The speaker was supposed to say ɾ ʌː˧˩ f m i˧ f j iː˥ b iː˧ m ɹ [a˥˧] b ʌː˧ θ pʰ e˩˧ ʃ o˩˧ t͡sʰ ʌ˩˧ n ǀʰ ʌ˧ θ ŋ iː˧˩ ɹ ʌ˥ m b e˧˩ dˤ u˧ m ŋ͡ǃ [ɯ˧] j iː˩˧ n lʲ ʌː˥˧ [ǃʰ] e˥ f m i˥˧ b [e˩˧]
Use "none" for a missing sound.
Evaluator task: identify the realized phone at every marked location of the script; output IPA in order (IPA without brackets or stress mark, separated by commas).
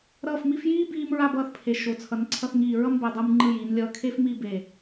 a˥˧, ɯ˧, kʰ, e˧˩